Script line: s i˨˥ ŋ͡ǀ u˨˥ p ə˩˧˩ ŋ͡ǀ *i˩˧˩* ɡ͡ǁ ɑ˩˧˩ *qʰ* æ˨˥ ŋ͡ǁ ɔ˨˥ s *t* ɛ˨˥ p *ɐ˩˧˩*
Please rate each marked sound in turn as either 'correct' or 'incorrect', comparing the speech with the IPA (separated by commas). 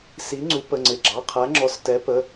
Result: incorrect, correct, correct, incorrect